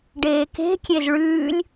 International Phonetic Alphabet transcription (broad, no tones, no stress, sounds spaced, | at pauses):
ɖ eː k e̤ kʲ e z ɭ ʉː lʲ